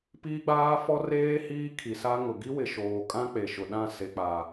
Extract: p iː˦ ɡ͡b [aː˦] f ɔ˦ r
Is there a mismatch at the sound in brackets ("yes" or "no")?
no